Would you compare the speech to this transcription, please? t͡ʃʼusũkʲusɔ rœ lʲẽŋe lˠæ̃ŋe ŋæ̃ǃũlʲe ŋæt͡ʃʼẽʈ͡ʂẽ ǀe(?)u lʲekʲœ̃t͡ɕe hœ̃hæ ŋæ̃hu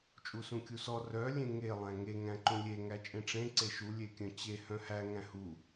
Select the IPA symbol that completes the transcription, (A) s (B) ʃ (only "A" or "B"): B